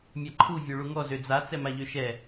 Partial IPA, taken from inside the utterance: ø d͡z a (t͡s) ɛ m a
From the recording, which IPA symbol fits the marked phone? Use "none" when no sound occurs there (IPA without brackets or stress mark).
t͡s